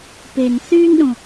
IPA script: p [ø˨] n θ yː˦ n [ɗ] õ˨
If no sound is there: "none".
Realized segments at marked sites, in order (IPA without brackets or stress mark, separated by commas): e˨, ɗ